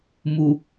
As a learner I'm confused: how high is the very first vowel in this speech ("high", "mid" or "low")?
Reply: high